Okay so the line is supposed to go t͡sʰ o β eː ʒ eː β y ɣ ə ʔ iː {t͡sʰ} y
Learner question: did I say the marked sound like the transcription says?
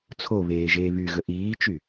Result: no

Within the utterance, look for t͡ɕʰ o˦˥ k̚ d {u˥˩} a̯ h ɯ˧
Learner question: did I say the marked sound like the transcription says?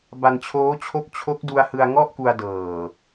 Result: no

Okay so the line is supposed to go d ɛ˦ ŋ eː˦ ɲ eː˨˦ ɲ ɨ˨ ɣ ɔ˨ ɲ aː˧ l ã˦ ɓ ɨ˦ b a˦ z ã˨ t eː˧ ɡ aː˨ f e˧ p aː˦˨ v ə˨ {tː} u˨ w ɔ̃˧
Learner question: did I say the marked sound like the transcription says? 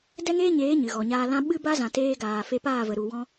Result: no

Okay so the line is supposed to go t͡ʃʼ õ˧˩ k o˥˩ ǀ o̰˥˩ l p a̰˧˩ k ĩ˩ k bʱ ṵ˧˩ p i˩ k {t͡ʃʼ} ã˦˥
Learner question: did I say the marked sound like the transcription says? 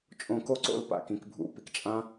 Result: yes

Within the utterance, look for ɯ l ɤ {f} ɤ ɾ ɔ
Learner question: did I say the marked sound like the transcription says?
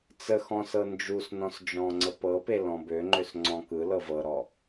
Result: no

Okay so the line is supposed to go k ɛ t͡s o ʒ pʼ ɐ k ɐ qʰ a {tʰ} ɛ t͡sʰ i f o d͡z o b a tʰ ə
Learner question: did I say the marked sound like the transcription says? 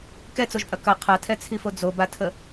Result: yes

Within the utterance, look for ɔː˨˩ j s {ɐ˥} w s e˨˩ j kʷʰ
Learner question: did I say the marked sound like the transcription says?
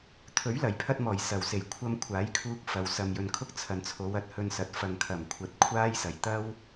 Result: no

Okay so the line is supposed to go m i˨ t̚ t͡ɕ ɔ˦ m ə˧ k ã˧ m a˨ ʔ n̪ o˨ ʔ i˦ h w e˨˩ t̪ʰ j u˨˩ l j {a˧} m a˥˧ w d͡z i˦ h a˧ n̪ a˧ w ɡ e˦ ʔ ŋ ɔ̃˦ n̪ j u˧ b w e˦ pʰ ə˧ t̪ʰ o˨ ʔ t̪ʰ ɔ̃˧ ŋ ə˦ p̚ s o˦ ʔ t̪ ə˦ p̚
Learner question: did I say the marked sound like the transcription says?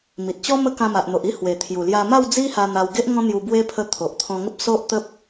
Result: yes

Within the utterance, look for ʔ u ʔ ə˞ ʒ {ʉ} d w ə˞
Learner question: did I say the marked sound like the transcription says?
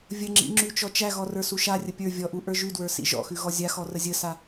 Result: yes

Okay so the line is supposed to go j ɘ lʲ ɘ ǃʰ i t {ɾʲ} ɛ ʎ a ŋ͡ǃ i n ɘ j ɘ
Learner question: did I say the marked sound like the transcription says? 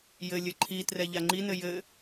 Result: no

